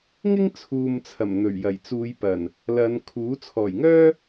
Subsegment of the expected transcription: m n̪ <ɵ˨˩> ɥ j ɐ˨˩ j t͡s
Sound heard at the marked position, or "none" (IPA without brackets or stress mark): ɵ˨˩